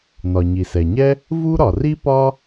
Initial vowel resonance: oral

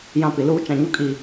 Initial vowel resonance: nasal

